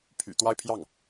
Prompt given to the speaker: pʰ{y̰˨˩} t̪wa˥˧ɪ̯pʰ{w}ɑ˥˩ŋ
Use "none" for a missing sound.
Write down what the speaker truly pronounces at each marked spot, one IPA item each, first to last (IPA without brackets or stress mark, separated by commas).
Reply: y̰˨˩, j